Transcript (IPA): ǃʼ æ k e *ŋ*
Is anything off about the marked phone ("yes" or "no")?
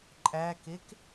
yes